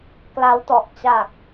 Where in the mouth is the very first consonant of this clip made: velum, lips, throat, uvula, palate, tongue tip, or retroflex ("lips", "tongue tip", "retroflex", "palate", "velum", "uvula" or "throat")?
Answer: velum